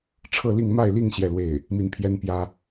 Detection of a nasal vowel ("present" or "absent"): absent